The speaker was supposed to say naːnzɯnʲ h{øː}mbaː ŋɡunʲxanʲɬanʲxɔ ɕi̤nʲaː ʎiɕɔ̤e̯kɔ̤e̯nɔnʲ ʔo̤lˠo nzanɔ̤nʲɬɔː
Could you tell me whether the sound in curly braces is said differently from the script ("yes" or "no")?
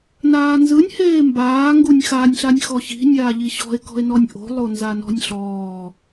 yes